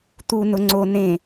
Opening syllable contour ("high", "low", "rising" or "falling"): low